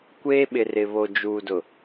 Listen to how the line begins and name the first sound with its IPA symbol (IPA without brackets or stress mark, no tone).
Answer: kʷ